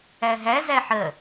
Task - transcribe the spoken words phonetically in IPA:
æ ɦ æ z æ ħ ɜ

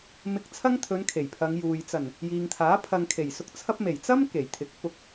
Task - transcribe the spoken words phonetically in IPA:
m ɪ˧ k̚ t͡sʰ ɐ˥ ŋ t̪ʰ ɵ˨˧ n kʰ e˨˩ j pʰ ɐ˨˧ ŋ j uː˨ j t͡s ɐ˨˩ n | j iː˨ ŋ t̪ʰ aː˨˥ pʰ ɐ˧ ŋ kʰ e˨˩ j s ʊ˧ k̚ t͡sʰ ɐ˥ p̚ m e˨˩ j t͡s ɐ˥ m k e˨˩ j t̪ʰ ɪ˨˥ k̚ f ʊ˧ k̚

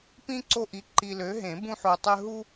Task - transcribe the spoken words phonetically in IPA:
p ĩ˦ ǀ o˦ ʔ i˨˥ ǃ i˨ l ø˨˥ ɦ ẽ˨˩˦ b ũ˦ ħ o˨ tˤ ø˦ ɦ u˦

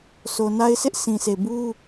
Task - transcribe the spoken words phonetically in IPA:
s o˨ n a˦ ɪ̯ s ɪ˦ ʔ sʰ ĩ˨ s e˨ b u˦

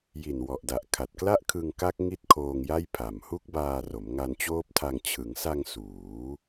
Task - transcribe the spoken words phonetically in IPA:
j i˨˩ n w ɔ˨˩ ʔ d a˨˩ ʔ kʰ a˨˩ t̚ k l a˥˩ ʔ kʰ ɯ˧ ŋ k a˦˥ k̚ ŋ i˥˩ t̚ kʰ oː˧ ŋ j a˥˩ j pʰ a˨˩ m h u˦˥ k̚ b aː˧ r o˩˦ m ŋ a˧ n t͡ɕ oː˦˥ p̚ tʰ a˧ ŋ t͡ɕʰ ɯ˩˦ ŋ s a˧ ŋ s uː˩˦

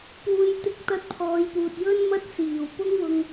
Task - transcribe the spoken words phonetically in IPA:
p uː˧ j t̪ ɪ˥ k̚ t̪ ɐ˥ t̚ pʰ ɔː˨˧ j p uː˨ t̚ j ɵ˥ n m ɐ˥ t̚ s iː˨˩ w p ʊ˥ ŋ w ʊ˧ ŋ

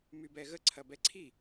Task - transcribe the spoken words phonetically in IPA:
m y b ɛ ɣ ə ǀʰ ɐ b ɛ ǀʰ i

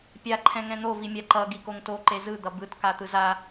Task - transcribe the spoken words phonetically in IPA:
pʲ a ǃʰ ɛ̃ ŋ ɛ̃ n̪ o v i mʲ a ǃ ʌ ɡ i k o ŋ t o ǃ e z ɯ d̪ ʌ b ɯ t k a t̪ ɯ z a

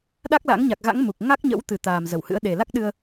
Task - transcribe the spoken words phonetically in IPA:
ɗ a˦˥ k̚ l a̰˧˥ ŋ ɲ a˨˩ k̚ ɣ a̰˧˥ ŋ m u˨˩ k̚ ŋ a˦˥ k̚ ɲ ə̰˧˥ w t̪ ɨ˨˩ t̪ aː˨˩ m z ə˧˩ w h ɨ̰˧˥ ə̯ ɗ e˨˩ l a˦˥ k̚ ɗ ɨ˧ ə̯

